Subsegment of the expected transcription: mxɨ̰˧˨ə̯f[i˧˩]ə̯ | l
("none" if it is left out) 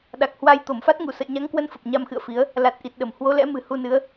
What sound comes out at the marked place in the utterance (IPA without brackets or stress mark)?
i˨˦